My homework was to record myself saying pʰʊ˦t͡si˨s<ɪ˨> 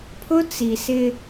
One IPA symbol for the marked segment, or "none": ɪ˦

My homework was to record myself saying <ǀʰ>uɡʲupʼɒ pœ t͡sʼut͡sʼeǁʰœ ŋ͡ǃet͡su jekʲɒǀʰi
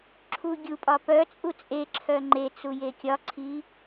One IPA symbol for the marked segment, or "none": ǁʰ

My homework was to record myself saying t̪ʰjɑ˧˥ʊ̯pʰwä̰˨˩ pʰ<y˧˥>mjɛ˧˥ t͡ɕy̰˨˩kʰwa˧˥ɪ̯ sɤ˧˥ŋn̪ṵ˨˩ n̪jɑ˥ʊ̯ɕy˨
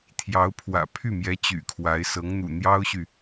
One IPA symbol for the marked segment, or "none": y˥˩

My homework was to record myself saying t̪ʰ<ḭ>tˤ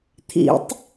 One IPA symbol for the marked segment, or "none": ḭ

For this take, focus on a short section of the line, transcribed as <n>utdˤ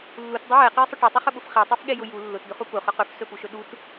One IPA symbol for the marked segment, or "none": lː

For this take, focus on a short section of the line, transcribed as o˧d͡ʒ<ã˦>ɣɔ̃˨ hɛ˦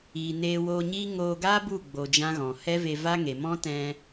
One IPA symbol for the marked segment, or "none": ã˦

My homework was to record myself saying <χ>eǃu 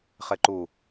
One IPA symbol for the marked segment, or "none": χ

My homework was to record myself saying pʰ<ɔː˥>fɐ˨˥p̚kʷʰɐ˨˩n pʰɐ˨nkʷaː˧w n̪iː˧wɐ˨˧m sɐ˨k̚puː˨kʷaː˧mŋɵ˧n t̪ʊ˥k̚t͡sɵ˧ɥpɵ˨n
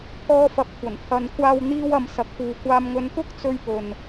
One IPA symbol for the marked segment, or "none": ɔː˧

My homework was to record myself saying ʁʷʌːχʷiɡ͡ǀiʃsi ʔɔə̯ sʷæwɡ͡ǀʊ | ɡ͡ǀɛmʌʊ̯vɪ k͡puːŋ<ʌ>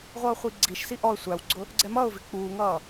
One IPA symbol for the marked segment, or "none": ʌː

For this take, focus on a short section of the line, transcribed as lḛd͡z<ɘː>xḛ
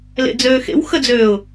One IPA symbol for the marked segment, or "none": øː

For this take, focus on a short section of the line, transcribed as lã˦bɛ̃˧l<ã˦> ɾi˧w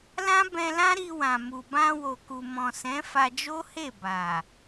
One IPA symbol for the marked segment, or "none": ã˦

